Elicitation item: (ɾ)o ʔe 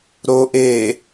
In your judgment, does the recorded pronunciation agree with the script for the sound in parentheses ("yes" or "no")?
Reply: yes